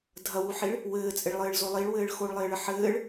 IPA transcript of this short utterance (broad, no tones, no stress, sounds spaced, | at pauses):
dʱ ɐ w u ħ i ɭ | w ɘː t͡sʼ ɪ ɭ lˠ ɘː ɭ z o lˠ i ɭ w ɘː ɭ x o ɭ lˠ ɪː ɭ ə ħ ɘː ɭ